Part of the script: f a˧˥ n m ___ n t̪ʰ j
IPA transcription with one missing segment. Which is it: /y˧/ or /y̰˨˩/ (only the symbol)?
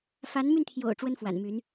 y˧